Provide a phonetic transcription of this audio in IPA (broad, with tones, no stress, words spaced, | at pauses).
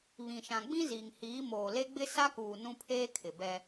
βĩ˨ʃã˨ ɡ͡bĩ˦ziː˨ŋ hiː˨˦moː˨ le˦ɡ͡bɪ˦ sa˦kuː˨ nũ˦pʰeː˦kʰɪ˨ bɛ˦